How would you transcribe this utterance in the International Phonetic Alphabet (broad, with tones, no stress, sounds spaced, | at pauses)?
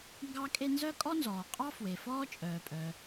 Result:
ŋ ɡ ɑ˥ kʼ e˥ n z œ˥ kʼ ɔ˥ n z ɔː˩ qʼ ɑ˥ f w e˩ f ɔː˥ t͡ʃʼ œː˩ pʼ œ˩